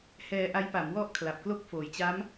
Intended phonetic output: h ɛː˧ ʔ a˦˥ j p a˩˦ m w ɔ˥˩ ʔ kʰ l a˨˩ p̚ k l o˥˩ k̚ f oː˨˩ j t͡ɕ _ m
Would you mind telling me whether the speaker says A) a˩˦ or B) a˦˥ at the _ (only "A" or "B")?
B